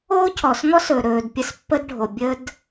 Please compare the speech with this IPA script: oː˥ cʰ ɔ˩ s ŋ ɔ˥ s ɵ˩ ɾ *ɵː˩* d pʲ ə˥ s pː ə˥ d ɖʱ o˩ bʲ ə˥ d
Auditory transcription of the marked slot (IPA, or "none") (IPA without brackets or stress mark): ɵː˩